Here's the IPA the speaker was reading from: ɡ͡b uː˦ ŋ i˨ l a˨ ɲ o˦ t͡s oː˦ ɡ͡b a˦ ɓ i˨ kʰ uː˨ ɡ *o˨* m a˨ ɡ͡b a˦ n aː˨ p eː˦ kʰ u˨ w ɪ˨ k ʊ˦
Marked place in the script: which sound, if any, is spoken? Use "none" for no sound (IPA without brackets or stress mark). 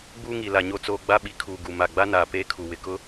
u˨